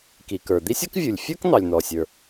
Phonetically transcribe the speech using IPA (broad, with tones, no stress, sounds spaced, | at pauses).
k i˩ k ə˞˩ d̪ i˥ sʲ ʌ˥ k vʲ u˩ lʲ fʲ ə˞˥ k n̪ ɑ˩ lʲ n̪ ɔ˩ sʲ ə˞˩